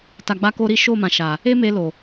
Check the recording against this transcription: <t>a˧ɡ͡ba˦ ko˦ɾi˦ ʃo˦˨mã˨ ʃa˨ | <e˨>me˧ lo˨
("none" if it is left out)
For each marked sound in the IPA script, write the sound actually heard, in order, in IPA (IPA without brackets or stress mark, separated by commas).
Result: t, e˦